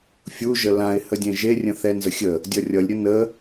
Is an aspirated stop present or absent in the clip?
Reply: absent